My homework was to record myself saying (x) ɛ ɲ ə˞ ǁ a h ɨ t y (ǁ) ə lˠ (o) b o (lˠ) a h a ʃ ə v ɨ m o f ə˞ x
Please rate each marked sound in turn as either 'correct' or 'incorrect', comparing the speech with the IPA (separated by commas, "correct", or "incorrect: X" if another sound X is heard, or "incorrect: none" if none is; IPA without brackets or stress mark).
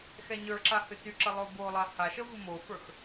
correct, correct, correct, correct